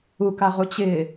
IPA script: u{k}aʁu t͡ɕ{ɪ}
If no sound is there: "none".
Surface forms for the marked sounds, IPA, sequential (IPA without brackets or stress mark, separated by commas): k, ɪː